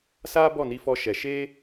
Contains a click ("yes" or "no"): no